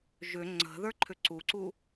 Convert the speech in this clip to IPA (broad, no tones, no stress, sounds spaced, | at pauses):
ʒ ʏ ŋ͡ǀ ə̤ ð ə˞ ǃʰ ʏ ǀ u ǀ u